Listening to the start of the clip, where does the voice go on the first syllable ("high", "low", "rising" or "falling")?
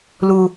high